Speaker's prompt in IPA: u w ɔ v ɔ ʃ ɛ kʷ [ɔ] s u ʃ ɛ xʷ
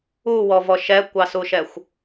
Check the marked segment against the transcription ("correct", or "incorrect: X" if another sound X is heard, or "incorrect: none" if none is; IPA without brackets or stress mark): incorrect: ɑ